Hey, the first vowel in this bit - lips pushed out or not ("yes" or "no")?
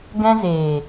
no